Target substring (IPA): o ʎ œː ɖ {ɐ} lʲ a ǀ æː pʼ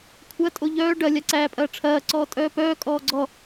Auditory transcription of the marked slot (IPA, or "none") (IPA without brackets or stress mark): ɐ